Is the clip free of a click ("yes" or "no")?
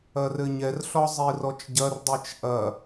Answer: yes